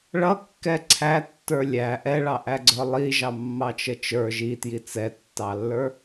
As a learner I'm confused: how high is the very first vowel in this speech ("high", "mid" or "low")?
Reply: mid